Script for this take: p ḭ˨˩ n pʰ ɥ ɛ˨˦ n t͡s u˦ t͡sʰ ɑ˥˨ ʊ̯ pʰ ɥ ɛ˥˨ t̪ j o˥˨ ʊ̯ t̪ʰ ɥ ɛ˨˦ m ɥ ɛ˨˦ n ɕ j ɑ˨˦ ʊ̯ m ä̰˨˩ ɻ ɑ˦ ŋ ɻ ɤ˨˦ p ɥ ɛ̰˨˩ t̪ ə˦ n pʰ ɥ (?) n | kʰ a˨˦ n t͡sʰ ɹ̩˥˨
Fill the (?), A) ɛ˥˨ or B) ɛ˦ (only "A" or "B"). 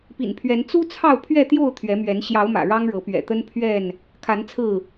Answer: A